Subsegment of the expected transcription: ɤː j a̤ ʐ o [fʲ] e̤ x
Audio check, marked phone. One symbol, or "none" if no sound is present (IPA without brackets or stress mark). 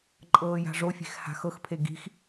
fʲ